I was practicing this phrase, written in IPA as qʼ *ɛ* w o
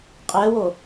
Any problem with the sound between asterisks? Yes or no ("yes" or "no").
no